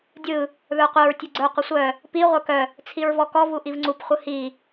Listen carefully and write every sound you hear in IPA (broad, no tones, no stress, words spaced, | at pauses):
dʲɯ | ðə˞qʷœɹ tʲuɡ͡ǀə˞ qʷəsʷœ | pi ʁʷə˞kœ | t͡sʰiɹvɔkɔ vuʔivŋ͡ǀup χʷɯhi